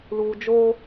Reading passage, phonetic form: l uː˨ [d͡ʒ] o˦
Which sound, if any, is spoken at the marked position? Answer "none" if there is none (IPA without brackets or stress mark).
d͡ʒ